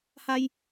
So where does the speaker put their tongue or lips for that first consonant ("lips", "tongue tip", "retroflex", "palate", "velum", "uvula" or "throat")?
throat